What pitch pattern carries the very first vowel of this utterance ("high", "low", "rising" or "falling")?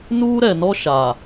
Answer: high